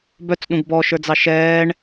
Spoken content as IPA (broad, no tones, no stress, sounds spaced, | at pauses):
b œ t͡s ɗ ũ ɡ b ɔ ʃ ə˞ d͡z ɑ ʃ ɛː ɳ